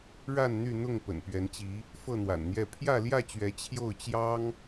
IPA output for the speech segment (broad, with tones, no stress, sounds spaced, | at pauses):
ɻ a˥˨ n n̪ y˥˨ n̪ ʊ˥˨ ŋ p ə̰˨˩ n p ɥ ɛ˨˦ n t͡ɕ i˨˦ | f ɤ˥˨ n̪ w a̰˨˩ n n̪ j ɛ˥˨ pʰ j ä˥˨ l j ä˥˨ t͡ɕ ɥ ɛ˨˦ t͡ɕʰ j o˥˨ ʊ̯ t͡ɕ j ɑ˦ ŋ